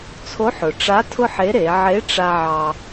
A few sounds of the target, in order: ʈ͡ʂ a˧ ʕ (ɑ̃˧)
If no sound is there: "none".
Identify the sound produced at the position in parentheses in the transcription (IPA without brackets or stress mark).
ɑ˧